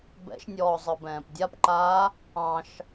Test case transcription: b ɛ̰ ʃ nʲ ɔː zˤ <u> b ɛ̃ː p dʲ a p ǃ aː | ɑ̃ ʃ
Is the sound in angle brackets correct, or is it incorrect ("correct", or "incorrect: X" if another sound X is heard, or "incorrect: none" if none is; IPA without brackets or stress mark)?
incorrect: ɯ